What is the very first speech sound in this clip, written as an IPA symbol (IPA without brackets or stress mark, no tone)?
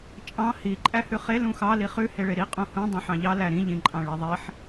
t͡ʃʼ